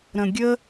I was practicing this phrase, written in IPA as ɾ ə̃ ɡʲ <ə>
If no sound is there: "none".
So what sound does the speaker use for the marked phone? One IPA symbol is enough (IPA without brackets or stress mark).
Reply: ə